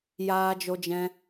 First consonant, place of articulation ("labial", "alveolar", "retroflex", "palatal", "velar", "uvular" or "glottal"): palatal